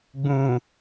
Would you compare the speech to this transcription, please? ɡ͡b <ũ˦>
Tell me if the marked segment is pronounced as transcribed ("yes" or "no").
no